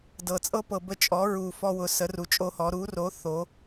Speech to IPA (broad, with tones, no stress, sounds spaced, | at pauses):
d ɤ˨ t͡sʼ ɤ˦ p ɤ˨ b ə˦ t͡ʃʼ ɔ˨˥ ɹ u˨ f ɔ˦ w ʊ˨˥ s ə˨˥ r u˨ t͡ʃʼ o˦ h ɔ˨˥ ɾ u˨˥ r o˨˥ θ o˨˥